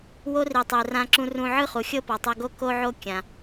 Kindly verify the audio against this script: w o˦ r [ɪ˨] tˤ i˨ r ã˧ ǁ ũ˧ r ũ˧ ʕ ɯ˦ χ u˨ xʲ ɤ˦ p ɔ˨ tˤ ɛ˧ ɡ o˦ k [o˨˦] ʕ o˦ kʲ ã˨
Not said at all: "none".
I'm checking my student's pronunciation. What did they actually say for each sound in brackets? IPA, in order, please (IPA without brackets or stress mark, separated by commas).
i˨, o˦